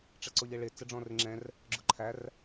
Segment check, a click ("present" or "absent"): present